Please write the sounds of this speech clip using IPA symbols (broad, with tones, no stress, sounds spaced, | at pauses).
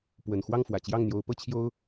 p w ə˨˩ n x w ɑ˥˩ ŋ f w ä˨˩ t͡ɕ j ɑ˥˩ ŋ n̪ j o˧˥ ʊ̯ p ɤ˥ t͡ɕʰ j o˥ ʊ̯